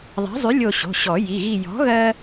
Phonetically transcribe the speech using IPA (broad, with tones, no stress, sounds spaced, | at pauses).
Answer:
ðˤ a̤˨˥ zˤ y˨˥ lʲ o˦˨ ɕ o̤˩˧˩ ɕ ɔ˨˩˦ j i˩˧˩ ɣ i˦˨ j ɔ̤˨˥ ɣ ɜ˥